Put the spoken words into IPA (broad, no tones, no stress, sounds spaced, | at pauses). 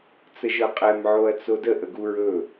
t͡s ə ʒ ɤ qʼ ɛ m ʕ o ɐ̯ t͡s o d ə ʔ ə ɡ u ɹ ɵ